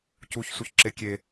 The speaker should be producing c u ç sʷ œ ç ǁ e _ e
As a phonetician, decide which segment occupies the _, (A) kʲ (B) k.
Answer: A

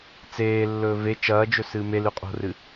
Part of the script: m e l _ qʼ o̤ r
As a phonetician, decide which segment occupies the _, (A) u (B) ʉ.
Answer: B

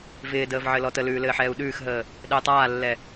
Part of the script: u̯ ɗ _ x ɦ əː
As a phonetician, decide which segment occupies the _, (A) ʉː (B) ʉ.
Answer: A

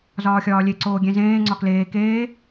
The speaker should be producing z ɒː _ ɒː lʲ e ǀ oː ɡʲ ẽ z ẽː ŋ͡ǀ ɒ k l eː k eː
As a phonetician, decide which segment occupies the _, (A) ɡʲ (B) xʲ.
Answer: B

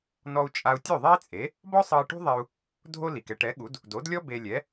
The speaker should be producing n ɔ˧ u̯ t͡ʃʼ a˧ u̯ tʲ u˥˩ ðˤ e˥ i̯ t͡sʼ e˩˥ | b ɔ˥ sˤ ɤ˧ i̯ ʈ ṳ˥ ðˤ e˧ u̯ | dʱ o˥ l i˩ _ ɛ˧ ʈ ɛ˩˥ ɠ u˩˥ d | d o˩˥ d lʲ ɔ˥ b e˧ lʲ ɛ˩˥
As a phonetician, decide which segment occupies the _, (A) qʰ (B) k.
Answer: B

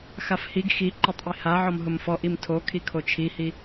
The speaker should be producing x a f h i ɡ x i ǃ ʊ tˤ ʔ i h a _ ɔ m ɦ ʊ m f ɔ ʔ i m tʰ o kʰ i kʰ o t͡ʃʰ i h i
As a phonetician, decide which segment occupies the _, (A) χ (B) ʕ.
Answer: B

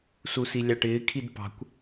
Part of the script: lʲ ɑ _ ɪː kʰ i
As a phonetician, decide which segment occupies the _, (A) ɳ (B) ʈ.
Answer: B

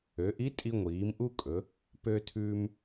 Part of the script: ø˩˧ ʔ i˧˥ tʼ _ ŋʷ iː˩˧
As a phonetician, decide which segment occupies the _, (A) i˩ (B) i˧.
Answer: B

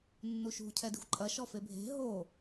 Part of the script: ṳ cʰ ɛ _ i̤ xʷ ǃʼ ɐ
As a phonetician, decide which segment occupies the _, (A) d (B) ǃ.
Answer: A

